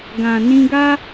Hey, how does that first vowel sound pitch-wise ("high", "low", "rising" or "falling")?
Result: low